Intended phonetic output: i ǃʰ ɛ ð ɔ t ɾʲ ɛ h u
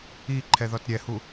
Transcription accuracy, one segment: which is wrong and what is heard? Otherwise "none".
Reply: none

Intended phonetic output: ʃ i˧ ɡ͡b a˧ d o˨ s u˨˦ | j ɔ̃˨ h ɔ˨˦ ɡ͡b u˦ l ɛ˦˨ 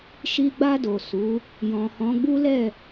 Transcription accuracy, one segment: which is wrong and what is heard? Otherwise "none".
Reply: ɔ˨˦ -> ɔ̃˨˦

